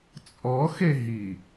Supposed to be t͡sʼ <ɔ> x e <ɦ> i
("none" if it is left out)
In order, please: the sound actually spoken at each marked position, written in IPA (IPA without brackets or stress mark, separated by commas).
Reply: ɔ, ɦ